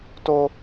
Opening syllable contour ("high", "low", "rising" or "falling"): high